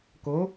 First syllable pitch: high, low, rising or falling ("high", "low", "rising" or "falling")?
rising